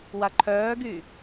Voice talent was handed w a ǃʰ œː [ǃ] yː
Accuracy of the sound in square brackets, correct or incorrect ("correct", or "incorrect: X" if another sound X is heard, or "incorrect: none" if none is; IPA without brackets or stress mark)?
incorrect: ɡ